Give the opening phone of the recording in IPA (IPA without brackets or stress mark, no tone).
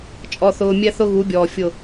t͡ʃʼ